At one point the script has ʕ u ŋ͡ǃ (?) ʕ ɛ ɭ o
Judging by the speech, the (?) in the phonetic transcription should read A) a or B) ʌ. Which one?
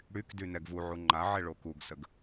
A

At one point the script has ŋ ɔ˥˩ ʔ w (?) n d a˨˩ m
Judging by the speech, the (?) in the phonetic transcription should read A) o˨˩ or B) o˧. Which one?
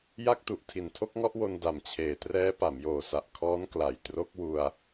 B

